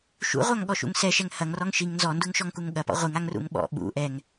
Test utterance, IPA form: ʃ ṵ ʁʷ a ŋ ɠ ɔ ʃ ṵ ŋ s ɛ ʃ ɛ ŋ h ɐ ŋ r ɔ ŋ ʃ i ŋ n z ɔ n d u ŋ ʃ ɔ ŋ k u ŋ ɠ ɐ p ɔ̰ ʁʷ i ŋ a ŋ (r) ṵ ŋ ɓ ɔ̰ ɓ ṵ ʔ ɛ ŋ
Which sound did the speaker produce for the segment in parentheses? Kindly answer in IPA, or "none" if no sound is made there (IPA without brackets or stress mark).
r